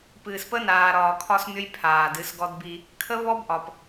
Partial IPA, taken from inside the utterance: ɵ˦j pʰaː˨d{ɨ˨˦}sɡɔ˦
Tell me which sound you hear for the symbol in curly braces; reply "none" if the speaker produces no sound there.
ɨ˨˦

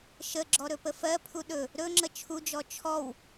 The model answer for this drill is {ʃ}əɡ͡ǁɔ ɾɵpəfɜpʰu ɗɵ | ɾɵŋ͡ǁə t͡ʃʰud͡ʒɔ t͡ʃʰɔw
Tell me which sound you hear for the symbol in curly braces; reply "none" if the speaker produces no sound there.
ʃ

